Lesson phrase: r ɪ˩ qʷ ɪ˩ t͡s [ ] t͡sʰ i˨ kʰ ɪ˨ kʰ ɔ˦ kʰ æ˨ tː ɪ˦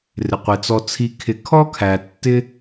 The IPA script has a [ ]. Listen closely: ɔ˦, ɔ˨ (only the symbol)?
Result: ɔ˨